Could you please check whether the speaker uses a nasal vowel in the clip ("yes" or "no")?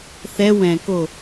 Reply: yes